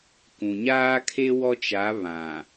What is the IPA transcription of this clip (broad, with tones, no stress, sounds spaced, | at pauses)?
k ũ˨ ɲ aː˦ kʰ e˦ w ɔ˦ t͡ʃ a˨˦ β ã˨